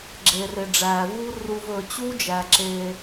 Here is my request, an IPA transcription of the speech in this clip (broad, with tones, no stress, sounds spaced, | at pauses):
ɡ͡ǁ e˨ r e˨ ɖ͡ʐ æː˨ v u˦ r u˨ v ɵ˨ t͡ɕ u˦ d͡ʒ æ˨ ǁ eː˦